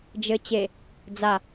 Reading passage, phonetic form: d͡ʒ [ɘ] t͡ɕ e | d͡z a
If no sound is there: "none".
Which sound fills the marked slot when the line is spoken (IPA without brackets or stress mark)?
ɘ